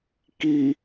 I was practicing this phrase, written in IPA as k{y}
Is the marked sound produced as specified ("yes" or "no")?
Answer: no